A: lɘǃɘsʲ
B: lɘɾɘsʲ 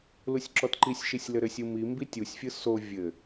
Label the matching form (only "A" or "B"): B